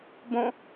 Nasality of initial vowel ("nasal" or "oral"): nasal